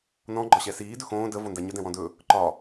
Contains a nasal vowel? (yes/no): yes